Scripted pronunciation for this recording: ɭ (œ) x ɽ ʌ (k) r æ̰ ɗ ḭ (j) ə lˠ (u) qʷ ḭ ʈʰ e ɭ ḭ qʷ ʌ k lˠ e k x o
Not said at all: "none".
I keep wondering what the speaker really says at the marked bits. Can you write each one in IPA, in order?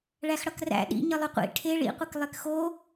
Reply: æ, k, ɲ, ʏ

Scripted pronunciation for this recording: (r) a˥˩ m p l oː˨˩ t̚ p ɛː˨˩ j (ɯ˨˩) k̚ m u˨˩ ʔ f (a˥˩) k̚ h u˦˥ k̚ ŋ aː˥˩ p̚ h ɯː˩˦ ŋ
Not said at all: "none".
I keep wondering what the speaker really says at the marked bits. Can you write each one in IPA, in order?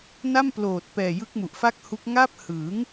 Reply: n, ɯ˦˥, a˥˩

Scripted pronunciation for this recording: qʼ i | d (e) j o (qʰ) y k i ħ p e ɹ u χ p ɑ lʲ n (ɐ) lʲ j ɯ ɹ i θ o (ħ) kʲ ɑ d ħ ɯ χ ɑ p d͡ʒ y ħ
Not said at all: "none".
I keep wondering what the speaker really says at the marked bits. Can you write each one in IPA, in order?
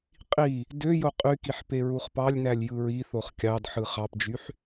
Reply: ø, qʼ, æ, χ

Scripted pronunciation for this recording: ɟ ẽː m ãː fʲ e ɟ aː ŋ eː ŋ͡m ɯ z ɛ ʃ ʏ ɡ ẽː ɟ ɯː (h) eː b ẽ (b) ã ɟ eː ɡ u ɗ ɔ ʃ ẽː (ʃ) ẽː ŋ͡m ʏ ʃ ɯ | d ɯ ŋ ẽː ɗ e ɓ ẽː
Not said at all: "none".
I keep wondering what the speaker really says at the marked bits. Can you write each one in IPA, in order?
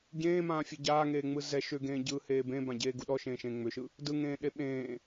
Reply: h, b, ʃ

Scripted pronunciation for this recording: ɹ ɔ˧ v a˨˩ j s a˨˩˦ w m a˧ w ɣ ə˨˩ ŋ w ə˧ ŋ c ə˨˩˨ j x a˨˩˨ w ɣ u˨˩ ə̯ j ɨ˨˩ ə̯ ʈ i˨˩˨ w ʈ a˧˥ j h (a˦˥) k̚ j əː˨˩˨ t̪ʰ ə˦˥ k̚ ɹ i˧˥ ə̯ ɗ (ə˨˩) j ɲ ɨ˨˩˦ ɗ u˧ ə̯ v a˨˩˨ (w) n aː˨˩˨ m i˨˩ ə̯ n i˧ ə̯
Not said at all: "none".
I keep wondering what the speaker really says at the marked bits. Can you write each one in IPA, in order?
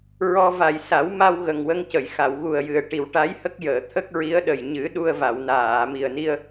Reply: ə˦˥, ə˨˩, w

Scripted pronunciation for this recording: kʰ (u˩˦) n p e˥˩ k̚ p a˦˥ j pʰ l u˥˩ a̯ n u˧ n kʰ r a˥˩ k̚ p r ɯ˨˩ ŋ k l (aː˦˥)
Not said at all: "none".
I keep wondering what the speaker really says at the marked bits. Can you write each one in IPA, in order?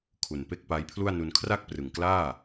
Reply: u˨˩, aː˥˩

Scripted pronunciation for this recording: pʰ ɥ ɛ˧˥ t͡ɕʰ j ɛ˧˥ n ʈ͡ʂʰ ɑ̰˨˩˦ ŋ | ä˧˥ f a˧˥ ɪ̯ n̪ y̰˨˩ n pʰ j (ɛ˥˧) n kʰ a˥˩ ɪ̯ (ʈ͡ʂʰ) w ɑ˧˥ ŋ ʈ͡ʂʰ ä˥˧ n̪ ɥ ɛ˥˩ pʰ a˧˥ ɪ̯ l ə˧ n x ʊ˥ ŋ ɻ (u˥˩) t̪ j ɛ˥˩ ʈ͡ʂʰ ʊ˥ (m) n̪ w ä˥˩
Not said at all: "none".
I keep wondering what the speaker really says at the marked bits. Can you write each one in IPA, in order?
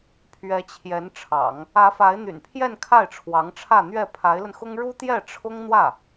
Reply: ɛ˥˧, ʈ͡ʂʰ, u˥, ŋ

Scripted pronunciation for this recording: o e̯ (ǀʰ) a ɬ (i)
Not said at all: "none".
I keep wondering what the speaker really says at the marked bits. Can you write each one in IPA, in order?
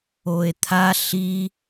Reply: t̪ʰ, i

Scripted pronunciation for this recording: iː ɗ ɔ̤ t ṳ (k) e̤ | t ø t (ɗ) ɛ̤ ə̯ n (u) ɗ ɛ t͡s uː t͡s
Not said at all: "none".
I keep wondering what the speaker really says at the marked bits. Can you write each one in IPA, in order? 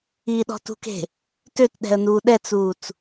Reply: k, ɗ, uː

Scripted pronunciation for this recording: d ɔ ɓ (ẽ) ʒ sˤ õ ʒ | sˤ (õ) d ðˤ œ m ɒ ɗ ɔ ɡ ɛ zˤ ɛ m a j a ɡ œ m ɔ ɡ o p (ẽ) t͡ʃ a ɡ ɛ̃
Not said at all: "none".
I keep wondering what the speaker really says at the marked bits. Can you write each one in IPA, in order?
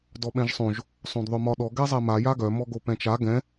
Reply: ɛ̃, õ, ɛ̃

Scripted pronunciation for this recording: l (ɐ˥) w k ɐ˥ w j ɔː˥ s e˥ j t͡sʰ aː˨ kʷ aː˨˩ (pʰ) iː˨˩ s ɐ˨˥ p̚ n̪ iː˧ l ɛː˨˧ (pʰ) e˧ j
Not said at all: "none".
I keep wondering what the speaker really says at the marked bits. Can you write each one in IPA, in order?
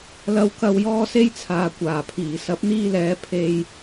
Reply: ɐ˥, pʰ, pʰ

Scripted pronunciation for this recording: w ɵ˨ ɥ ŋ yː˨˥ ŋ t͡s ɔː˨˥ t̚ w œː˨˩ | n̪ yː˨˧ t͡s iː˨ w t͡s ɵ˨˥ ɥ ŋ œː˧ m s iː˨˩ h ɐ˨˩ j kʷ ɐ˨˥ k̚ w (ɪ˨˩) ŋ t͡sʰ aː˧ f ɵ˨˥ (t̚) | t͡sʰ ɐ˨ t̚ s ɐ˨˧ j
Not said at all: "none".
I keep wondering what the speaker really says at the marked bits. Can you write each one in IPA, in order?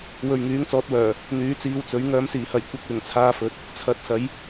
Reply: ɪ˨˩, t̚

